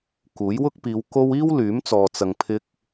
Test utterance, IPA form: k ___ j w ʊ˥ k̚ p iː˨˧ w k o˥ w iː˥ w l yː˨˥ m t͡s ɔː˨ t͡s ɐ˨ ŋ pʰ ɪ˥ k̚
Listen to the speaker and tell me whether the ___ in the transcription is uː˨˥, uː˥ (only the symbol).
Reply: uː˨˥